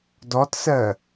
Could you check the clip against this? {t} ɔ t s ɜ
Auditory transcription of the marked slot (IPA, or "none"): d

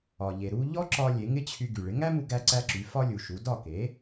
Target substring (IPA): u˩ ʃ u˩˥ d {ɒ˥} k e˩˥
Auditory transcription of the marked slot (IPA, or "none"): ɒ˥˩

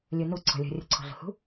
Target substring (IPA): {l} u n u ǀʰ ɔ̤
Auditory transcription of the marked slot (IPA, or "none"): lʲ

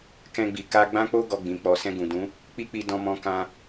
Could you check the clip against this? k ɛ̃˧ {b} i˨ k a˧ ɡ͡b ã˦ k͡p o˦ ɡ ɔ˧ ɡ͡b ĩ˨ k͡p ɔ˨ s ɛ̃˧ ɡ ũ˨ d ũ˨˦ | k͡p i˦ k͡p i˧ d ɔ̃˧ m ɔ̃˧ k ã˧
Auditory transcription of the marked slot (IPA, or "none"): ɡ͡b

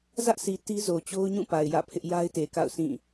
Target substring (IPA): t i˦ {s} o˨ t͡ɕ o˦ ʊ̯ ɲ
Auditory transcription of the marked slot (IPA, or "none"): z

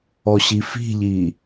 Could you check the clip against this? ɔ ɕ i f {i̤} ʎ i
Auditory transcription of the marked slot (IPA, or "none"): i̤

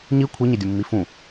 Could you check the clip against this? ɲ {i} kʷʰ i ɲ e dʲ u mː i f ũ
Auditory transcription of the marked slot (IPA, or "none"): i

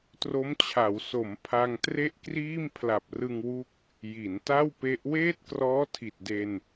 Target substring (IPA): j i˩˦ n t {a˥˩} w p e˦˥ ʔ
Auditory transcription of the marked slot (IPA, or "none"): a˥˩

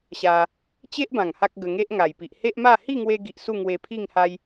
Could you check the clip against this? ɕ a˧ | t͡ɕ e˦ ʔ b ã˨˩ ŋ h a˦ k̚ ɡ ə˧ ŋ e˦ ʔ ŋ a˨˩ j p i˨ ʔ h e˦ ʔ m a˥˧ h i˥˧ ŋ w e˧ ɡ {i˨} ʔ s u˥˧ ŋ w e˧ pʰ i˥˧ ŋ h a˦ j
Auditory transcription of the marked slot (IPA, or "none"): i˨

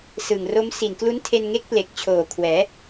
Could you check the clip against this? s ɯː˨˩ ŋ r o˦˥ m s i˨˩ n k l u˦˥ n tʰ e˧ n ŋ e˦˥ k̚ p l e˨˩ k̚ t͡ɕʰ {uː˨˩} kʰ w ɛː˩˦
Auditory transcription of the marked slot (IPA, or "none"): oː˨˩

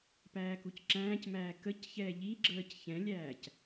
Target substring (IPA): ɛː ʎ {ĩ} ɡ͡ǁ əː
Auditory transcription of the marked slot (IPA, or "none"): i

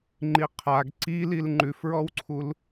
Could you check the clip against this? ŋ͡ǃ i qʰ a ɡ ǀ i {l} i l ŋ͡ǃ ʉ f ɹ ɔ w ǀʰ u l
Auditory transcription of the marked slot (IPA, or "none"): l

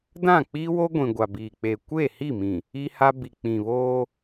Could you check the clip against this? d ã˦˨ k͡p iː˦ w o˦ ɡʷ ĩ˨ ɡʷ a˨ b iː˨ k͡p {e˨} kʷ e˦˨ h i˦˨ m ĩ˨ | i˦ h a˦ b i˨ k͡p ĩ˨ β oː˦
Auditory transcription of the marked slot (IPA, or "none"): e˨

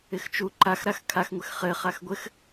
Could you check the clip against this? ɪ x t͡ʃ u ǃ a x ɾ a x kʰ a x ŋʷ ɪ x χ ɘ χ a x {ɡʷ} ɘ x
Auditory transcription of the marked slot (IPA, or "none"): ɡʷ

